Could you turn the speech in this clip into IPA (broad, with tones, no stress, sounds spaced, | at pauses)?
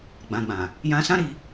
ɡ͡b ã˨ ɡ͡b ã˨ | j ã˧ s ã˦ ɾ i˧